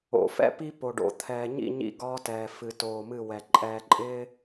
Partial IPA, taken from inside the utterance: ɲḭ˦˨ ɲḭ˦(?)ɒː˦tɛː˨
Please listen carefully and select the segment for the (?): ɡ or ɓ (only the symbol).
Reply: ɡ